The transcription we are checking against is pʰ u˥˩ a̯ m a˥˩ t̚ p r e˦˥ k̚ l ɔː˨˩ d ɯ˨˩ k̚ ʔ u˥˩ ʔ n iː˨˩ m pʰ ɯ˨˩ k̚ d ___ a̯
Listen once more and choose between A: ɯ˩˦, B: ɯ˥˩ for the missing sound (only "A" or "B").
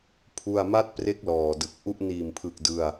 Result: B